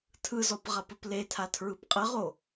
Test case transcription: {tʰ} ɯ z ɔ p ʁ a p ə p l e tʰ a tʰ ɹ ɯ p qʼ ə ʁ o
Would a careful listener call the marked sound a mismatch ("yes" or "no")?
no